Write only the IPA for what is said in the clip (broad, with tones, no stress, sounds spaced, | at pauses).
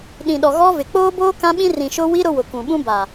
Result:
ɗ ĩ˨ ɗ ɔ˨ ɣ ɔ˦ v ɪ˨ k͡p oː˦ b oː˦ k ã˦ ɓ ĩ˦ r ĩ˨ ʃ ʊ˦ w i˦ ɾ ʊ˦ w ʊ˨ k ũ˨ ɓ ũ˦ b aː˨